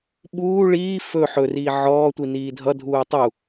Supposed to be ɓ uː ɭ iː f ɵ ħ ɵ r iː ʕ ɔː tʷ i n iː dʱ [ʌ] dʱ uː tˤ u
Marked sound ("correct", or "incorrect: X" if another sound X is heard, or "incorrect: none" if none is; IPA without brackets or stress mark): correct